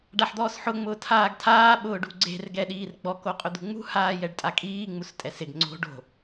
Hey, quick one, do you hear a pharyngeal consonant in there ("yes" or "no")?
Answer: yes